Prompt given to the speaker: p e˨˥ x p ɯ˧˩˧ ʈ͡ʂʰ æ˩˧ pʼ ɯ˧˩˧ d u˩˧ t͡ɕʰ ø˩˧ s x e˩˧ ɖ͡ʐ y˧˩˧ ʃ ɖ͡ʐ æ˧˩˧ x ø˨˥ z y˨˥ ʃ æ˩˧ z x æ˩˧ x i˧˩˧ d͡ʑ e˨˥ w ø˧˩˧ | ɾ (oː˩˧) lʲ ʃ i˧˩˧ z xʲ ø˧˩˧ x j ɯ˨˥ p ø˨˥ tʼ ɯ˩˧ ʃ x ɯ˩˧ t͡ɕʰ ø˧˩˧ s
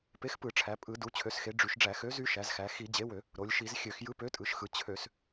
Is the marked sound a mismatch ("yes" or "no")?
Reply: yes